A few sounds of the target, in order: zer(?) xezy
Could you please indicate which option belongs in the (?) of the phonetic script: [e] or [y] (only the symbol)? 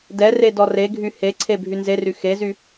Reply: y